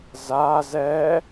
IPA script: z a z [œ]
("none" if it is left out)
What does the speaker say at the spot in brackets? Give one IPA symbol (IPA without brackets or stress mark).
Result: ɛ